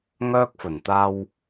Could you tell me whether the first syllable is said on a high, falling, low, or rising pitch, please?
high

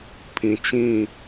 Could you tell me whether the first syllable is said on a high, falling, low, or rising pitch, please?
low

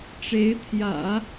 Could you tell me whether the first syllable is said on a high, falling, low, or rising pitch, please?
rising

